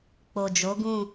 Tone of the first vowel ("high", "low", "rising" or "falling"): low